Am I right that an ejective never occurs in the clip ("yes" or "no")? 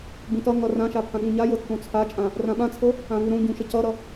no